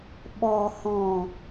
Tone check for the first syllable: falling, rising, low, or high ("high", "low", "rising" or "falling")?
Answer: low